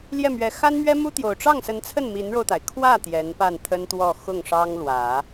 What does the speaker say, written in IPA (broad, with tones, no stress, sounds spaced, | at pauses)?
l j ɛ˥˩ m ɥ ɛ˧˥ x a˥ n m ɥ ɛ˥ m u˥ t̪ j o˨˩ ʊ̯ ʈ͡ʂ ɑ˥˩ ŋ s ə˧˥ n t͡sʰ ə˥˩ n m i˧˥ n ɻ o˧ ʊ̯ t̪ a˩ ɪ̯ kʰ w ä˥˩ t̪ j ɛ˧˥ n p a˥˩ n t̪ʰ ə˥ n t̪ w ɔ˥˧ x ʊ˥˩ ŋ ʂ ɑ˥ ŋ l w ä˨˩˦